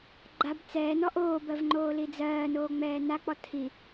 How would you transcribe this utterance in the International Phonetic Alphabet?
ɡ͡ǃ a b t͡s ɛː n ɔ ʔ oː b ɜ v ŋ͡ǃ oː l i d͡z ɜː n oː ŋ͡m ɛː n a k͡p ɔ tʰ i

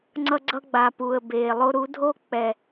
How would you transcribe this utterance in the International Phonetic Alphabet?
ŋ͡ǀ ʌ˧ ɡ͡ǀ ʌ˧ ɡ͡b a˨ p uː˨ ə̯ b eː˨ lˠ o˧ ɾ u˨˦ dʱ o˦ k͡p ɛ˨

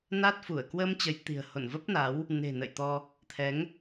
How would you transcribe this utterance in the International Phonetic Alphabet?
n a˦˥ t̚ f u˧˩ ə̯ k w ə˧ m t͡ɕ ə˨˦ j t̪ i̤˨˩ ə̯ h o̰˧˨ n v ə˦˥ p̚ n a˨˦ w | n e̤˨˩ n ə̰˧˨ j t̪ ɔ˧ | t̪ʰ ɛ˨˦ ŋ

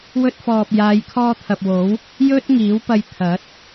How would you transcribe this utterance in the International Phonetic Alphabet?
w ɵ˧ t̚ f ɔː˨ p̚ j aː˨˧ j kʰ ɔː˧ t̪ʰ ɐ˨ p̚ w o˨˥ w | j ɵ˥ t̚ ŋ iː˨˥ w p ɐ˧ j t̪ʰ ɐ˨˥ t̚

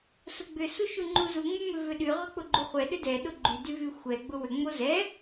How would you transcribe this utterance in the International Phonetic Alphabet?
s ʊ ɡ͡b ʏ s u ʃ u ŋ͡ǃ u z u ŋ͡m ʏ m ʏ v ʏ ɗ y ʁ ʏ k͡p ʊ ɡ͡ǃ u χʷ ɛ ɗ ʏ d ɛ ɗ ʊ ɡ͡ǃ y d y v y xʷ ɛ ɡ͡b ʊ w ʏ ŋ͡m o z ɛ

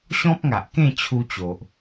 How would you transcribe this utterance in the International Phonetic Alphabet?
ɕ ɔ̃˦ p̚ ŋ a˨ ʔ k ẽ˥˧ t͡ɕʰ u˧ t͡ɕ o˨ ʔ

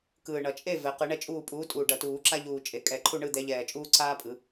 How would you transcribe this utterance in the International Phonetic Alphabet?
k ɯː˨˩ ɳ ʌ˨˩ t͡ʃʼ e˥˨ v ɛ˨˥ q ɯ˨˩˦ ɳ ɛ˥ t͡ʃʼ uː˥˨ pʼ uː˨˥ tʼ uː˨˩ ɖ ʌ˨˩˦ t uː˨˩˦ ǁ a˥ ʎ uː˨˩ t͡ʃʼ e˨˩˦ kʼ ɛ˨˩˦ ǃʰ u˥˨ ɳ ɯ˥˨ d̪ ɛ˨˥ ʎ ɛː˨˩ t͡ʃʼ uː˥ ǀ aː˥ pʼ ɯ˨˩˦

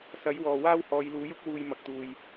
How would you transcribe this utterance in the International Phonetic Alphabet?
s ɐ˨˥ j w ɔː˨ w aː˥ w h ɔː˨˧ j l uː˨˥ j ʊ˥ k̚ w uː˨ j m ɐ˨ k̚ t̪ uː˨ j

